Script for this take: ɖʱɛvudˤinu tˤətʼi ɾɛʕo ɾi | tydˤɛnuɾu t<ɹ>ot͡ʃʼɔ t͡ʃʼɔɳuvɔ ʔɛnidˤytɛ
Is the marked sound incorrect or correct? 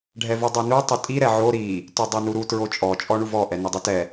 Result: correct